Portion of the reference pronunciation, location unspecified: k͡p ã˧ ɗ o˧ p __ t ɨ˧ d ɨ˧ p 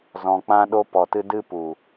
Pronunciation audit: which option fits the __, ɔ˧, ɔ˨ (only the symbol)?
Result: ɔ˨